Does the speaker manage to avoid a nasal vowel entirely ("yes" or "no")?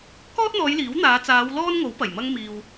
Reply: yes